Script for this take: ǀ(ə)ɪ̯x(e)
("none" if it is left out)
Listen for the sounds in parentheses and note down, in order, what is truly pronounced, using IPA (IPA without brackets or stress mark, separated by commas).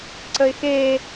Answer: ə, e